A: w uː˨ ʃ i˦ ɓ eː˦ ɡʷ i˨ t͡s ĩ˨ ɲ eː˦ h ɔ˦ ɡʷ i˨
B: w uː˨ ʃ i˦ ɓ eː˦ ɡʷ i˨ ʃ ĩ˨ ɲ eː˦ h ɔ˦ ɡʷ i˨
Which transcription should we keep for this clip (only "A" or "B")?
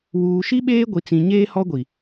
A